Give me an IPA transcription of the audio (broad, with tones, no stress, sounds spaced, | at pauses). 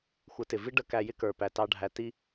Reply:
xʷ ə˨˦ t ɪ˨ v i˦ ɖ ə˧ k æ˧ j ɪ˦ k ə˞˨ p æ˨ t ɑ˧ ɖʱ æ˧ t i˧